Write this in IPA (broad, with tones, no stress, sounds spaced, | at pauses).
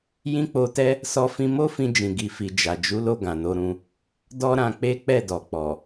j ĩ˦ k͡p o˧ t ɛ˦ | s ɔ˧ f ĩ˧ m o˦ f ĩ˧ d͡ʒ ĩ˨ ɡ i˨ f i˨ d͡ʒ a˨ d͡ʒ u˨˦ l o˧ ɡ ã˨ n o˨˦ ɾ ũ˧ | d ɔ˦ ɾ ã˧ k͡p e˦ k͡p ɛ˦˨ d ɔ˨ k͡p ɔ˨